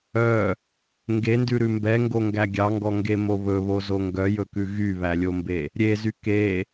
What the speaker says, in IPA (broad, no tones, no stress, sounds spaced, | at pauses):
œ | ŋ ɡ e n d ʉ ɾ ʉ m b ɛ ŋ ɡ o ŋ ɡ æ ɡʲ ɑ ŋ ɡ ɔ ŋ ɡ e m o β ɵ β o z o ŋ ɡ œ j ɵ k ʉ ɣ y β æ lʲ o m b e | ɾʲ e z y k e